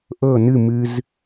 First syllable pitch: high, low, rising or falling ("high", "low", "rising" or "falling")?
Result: falling